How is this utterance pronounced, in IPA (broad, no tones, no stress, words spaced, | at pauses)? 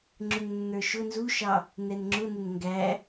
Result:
ŋ͡ǁʊŋnːə˞ʃʊ nzuʃɑ | nɛnŋ͡ǁʊnʊn ŋɡæ